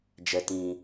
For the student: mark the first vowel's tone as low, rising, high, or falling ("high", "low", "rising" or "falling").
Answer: low